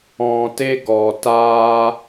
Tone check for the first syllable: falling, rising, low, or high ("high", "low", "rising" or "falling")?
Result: low